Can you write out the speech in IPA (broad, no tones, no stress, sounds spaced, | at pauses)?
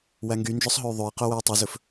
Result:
w æ ŋ ɡ y n d͡ʒ œ sˤ ɦ ɵ y̯ ðˤ ø i̯ q œ w œ u̯ tˤ y z ɵ f